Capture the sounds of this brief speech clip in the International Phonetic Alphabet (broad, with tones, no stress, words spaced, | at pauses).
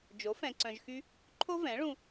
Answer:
d͡ʒo˩˥ fɛ̃˧ǀœ̃˧ʒxy˥ | ǃʰo˥vɛ̃˩˥ɭũ˧